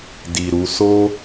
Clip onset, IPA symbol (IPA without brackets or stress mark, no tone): d